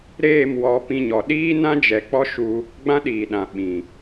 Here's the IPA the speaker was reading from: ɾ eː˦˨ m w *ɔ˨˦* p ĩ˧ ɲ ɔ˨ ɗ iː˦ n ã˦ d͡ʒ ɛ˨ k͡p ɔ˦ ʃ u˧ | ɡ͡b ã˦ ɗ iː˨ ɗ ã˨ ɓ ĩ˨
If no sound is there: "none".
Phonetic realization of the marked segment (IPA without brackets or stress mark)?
ɔ˨˦